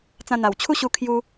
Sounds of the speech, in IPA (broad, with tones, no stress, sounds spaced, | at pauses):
t͡s ã˧ n̪ a˨˩ w t͡ɕʰ u˦ ɕ u˧ kʰ j u˦